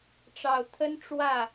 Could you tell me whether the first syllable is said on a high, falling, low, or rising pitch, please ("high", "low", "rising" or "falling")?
low